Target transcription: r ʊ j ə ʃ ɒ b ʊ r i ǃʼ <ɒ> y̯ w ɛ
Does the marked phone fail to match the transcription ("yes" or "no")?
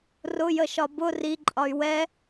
no